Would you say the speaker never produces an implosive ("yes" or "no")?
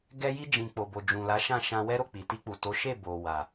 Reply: yes